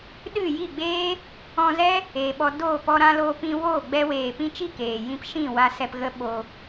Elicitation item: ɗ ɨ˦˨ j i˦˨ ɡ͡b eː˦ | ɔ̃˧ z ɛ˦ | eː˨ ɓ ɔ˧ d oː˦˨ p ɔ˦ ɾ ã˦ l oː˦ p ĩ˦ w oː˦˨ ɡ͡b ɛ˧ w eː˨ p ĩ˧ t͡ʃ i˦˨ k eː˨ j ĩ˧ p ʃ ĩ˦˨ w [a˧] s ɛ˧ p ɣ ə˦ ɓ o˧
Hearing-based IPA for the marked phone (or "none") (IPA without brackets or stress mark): a˧